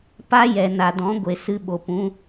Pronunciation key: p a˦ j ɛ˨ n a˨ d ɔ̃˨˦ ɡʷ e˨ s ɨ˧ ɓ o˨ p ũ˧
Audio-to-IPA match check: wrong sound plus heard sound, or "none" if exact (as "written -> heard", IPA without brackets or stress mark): none